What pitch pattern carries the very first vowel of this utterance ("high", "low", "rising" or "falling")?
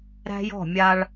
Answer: high